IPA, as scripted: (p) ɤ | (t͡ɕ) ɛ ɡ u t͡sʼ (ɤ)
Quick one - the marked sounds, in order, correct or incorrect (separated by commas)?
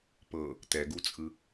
correct, incorrect, incorrect